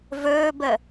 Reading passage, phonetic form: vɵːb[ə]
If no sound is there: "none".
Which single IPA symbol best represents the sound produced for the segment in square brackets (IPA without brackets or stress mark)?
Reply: ə